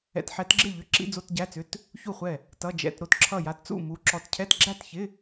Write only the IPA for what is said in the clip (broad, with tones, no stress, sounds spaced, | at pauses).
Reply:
ɛ̰˧˥˧ t ħ ɛ˧˥ t ɡ͡ǁ ɪ˥˨ ʎ ʏ˧˥˧ ǁ ḭ˧˥˧ d͡z o˧˥˧ t ɟ æ˧˥˧ t͡s ʏ˧˥˧ t | ç u˥˨ χʷ ɛ˥˨ | t ʌ˧˥˧ d͡ʒ ɛ̰˧˥˧ t ɾ o˥˨ t ǁʰ ʌ˥˨ j a˧˥ t t͡s ṵ˥˨ m u˧˥ ǁ ɔ˧˥ t cʰ ɛ˧˥˧ t ɡ͡ǁ æ˥˨ t ç ɪ˧˥˧